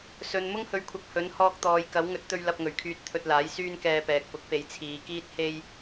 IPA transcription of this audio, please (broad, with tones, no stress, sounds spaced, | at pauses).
s ɵ˨ n m ʊ˥ ŋ h ɵ˨˥ ɥ kʷʰ ɐ˨ k̚ h ɵ˨˥ n h ɔː˧ k̚ t̪ ɔː˨˧ j k ɐ˨˥ w ŋ ɵ˨˥ t̚ t̪ ɵ˧ ɥ l ɐ˧ p̚ ŋ ɵ˨˩ ɥ kʰ yː˧ t̚ t̪ʰ ɵ˧ t̚ l aː˨˥ j s yː˥ n k ɛː˧ p ɛː˨ k̚ p ʊ˨˥ k̚ p e˨˥ j t͡sʰ iː˨˧ k iː˥ t̚ h e˥ j